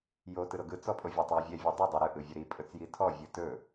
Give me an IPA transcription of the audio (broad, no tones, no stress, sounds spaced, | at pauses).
j o t ɯ ɾ o ɡ ɯ t͡s ɔ pʼ o vʲ o tˤ w e vʲ ɛ vʲ ɯ dˤ e dˤ e ɾ ɯ ʔ ɯ vʲ ɵ ɾ i pʼ ɵ t͡s j i tʰ ɔ vʲ ɯ t ɵ